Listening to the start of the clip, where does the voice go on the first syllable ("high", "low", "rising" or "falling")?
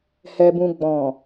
low